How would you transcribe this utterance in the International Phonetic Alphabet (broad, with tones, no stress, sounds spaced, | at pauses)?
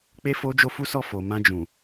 k͡p e˧ f o˦ d͡ʒ o˦ f u˦ s ɔ˦˨ f o˨ m ã˧ d͡ʒ ũ˨